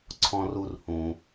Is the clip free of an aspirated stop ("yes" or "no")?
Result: no